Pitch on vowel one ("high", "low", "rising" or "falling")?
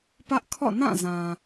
high